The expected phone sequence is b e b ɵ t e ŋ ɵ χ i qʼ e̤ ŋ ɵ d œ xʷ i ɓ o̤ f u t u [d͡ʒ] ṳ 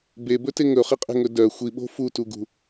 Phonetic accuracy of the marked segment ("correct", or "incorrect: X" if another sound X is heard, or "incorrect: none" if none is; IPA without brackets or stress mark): incorrect: ɡ